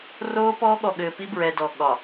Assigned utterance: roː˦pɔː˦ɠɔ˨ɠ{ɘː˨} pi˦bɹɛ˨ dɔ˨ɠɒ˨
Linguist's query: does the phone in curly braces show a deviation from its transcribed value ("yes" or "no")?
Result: no